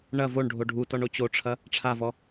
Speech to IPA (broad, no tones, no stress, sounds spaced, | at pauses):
ɳ ɐ v o ɳ ɖʱ o ɖʱ u t ɔ ɳ o t͡ɕ o ʈ͡ʂʰ ɐ | ʈ͡ʂʰ a v ɔ